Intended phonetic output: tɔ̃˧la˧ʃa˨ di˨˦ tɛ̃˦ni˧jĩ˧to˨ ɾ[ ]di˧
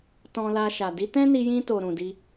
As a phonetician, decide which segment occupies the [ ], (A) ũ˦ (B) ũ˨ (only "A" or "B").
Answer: B